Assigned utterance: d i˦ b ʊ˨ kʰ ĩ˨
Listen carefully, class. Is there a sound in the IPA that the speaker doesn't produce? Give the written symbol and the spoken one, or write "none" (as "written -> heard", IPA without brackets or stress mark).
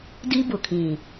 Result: none